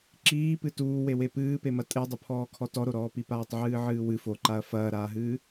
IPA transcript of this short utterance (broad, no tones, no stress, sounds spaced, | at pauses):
ǁ iː p ɨ t uː w e w e p ɨː p e m ɐ tʼ e dˤ ɘ pʰ ɔː kʰ ɔ t ɔ ɾ o ɾ ɔː p i p aː tˤ ʕ ɨː ʕ ɨː w ɨ f o ǃ a ɐ̯ f ɐː ɾ aː ɦ ɨː